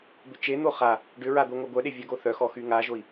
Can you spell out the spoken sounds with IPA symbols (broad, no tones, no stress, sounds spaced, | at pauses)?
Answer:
b ʏ t͡ʃ e n̪ o χ a | ɖ ʏ ɹ a d̪ o ŋʷ a ɡʷ œ ɗ e vʲ a ɡ o θ œ x ɔ x y ŋ a ʒ o i̯